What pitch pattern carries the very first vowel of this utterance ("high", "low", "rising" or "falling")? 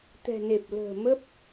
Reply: low